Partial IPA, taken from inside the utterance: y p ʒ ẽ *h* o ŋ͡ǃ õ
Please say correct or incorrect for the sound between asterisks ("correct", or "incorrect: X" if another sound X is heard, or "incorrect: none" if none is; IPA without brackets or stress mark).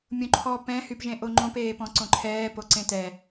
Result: incorrect: ʔ